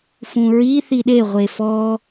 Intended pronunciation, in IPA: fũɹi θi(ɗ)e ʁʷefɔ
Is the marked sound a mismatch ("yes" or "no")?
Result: no